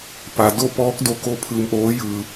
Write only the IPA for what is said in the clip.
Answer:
p a˩ d o˥˨ p ɔː˧˥ k̚ d o˧ k o˧˥ pʰ ɯː˧ m ʔ oː˧˥ j ɯː˧

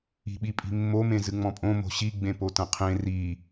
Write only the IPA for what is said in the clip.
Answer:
i̤ ɓ i pʼ i̤ mː o m ẽ z ɨ ŋ͡m ɔ̃ pʼ õ m o̤ ɕ i ɡ͡b ẽ p o t ɐ̃ qʰ ẽ r i

